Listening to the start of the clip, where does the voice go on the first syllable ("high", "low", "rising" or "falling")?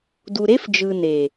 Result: low